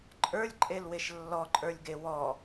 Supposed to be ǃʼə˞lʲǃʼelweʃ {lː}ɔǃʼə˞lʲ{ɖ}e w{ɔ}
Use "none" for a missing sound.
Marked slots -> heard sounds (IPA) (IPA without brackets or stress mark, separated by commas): lː, ɡ, ɔ